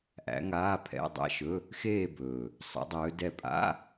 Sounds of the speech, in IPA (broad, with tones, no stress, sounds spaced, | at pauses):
ʔ æ̰˧˥ ŋ aː˧˥˧ pʰ ɛ̰˧˥˧ dˤ æ̰˥˧ ʃ ɵ˧˥˧ | x eː˥˧ b ɵː˨˩ | sˤ ɛ̰˧˥ dˤ ɵː˧˥ d ɛ˥˧ pʼ a̰˧˥˧